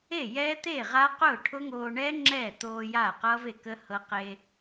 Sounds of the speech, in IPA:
e˥˩ j ɛ˦˥ t̪ e˥˩ ʁ a˦˥ q ʊː˥˩ ʈʰ ʊ˦˥ ŋ oː˧ ɳ ɛ˦˥ ŋ͡ǁ ɛ˥˩ t̪ oː˧ j a˥˩ q ʌ˦˥ v e˥˩ k ə˦˥ h ɤ˧ q e˧

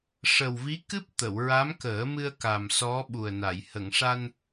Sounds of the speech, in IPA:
ʂ ə˨˩ w v i˧˥ k ɨ˦˥ p̚ t̪ ə˨˩˨ w ɹ a˧˥ m k əː˨˩˦ m ɨ˧ ə̯ k a˨˩ m s ɔ˧˥ ɓ u˨˩ ə̯ n a˨˩˨ j h ə˨˩˨ ŋ ʂ a˧ n

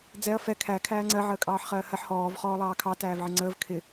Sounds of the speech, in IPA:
d͡z ɛ ɐ̯ f ɛ kʰ æ kʰ æː ŋ͡ǀ ɜ ʕ əː kʼ ɑː ħ χ ɜː h ɜ ħ h ɔː v χ ɔː lˠ ɑː kʰ ɑ t æː v ʕ ɪ ŋ͡ǀ əː v kʰ ɪ

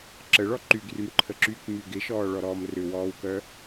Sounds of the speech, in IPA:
ǁ ə ɭ ɔ ǃ y ɡ r y m ǃʰ ə ǁ y k m y ɡ ɪ ʃ ɔː ɭ ɔ ɾ ɔː m r ʏ w ɔː w k œ

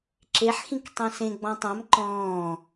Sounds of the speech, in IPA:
ǁ e ħ x ĩ k tˤ ẽ s ẽ ɡ͡b ɔ̃ tˤ ã m ǃ ɔ̃ː

